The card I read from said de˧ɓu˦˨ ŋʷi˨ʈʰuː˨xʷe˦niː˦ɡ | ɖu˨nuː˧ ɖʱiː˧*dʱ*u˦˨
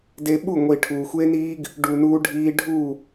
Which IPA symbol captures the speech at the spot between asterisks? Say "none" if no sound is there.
ɖʱ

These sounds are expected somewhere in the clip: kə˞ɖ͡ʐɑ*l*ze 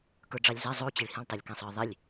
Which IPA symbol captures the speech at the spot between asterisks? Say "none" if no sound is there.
lʲ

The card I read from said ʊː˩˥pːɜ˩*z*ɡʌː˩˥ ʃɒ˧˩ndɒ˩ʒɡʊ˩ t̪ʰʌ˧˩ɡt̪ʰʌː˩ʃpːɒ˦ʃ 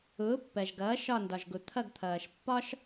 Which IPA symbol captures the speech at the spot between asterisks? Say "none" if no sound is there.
ʒ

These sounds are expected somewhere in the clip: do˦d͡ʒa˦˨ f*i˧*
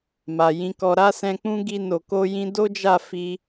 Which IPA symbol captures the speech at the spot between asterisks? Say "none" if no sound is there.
i˧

